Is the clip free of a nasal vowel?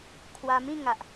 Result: no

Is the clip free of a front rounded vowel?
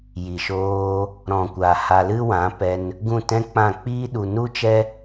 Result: yes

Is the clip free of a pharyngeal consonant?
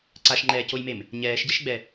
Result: yes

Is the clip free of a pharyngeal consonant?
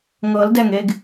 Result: yes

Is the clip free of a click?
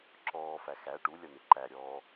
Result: no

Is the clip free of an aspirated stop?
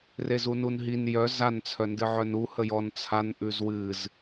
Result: no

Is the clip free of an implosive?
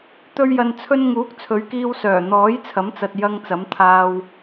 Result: yes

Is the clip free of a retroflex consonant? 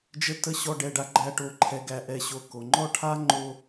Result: no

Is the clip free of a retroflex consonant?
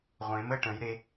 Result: no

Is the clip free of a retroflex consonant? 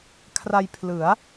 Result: yes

